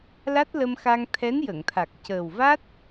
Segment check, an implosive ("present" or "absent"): absent